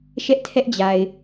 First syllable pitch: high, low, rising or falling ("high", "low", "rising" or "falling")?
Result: high